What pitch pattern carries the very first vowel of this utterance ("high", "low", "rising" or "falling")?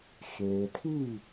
low